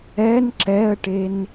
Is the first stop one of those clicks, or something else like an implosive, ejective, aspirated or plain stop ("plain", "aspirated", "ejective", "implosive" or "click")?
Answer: click